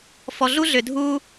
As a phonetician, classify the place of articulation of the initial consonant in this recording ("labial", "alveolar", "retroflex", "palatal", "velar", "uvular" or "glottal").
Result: labial